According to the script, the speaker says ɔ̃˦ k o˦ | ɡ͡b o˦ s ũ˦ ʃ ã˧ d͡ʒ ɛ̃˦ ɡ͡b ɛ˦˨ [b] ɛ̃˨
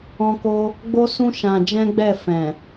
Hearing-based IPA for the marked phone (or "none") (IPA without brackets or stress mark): f